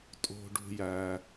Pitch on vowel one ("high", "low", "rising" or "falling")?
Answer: low